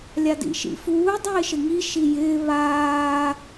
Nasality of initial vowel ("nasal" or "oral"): oral